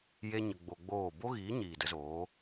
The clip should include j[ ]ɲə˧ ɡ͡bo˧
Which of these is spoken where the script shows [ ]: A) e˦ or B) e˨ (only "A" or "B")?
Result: A